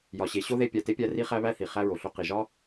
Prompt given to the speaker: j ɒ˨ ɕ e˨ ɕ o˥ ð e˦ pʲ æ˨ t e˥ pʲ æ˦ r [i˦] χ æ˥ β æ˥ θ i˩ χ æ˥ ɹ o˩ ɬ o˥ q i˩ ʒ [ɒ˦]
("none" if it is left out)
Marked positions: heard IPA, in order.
i˥, ɒ˥

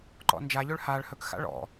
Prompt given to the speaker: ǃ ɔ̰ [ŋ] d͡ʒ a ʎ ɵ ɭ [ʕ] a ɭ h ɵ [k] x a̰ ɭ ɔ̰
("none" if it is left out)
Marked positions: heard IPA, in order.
n, h, k

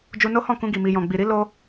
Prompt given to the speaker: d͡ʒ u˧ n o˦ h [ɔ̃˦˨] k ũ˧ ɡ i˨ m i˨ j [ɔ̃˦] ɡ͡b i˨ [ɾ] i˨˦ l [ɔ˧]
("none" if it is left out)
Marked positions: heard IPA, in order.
ɔ̃˦˨, ɔ̃˨, ɾ, o˧

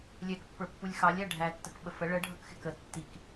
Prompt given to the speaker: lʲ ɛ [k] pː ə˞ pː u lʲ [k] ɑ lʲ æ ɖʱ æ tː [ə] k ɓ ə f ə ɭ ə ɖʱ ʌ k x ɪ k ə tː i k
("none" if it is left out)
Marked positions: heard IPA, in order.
k, x, ə

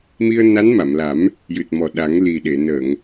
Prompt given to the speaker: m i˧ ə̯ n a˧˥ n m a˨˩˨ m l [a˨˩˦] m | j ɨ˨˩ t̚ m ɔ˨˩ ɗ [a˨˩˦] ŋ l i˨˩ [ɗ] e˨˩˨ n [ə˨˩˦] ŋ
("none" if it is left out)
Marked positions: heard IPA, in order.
a˨˩˦, a˨˩˦, ɗ, ə˨˩˨

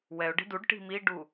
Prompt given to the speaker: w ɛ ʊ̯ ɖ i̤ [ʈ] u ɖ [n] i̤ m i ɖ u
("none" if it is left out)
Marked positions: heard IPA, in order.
d, ʈ

